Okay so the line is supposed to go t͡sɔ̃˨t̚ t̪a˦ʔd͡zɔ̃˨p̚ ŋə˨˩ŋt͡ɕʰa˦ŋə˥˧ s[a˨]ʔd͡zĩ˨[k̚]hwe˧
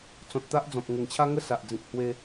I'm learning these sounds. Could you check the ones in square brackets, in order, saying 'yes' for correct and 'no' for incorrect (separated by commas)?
yes, yes